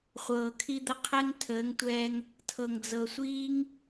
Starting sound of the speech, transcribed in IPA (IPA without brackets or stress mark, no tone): χʷ